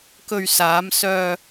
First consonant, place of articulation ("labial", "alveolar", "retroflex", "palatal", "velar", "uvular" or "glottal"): velar